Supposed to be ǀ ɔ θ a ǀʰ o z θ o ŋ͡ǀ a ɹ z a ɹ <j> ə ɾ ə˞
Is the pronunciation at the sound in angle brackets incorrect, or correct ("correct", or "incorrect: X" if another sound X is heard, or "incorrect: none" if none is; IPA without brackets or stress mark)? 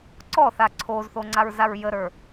correct